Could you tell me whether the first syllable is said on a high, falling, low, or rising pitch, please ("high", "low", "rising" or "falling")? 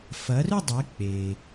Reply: rising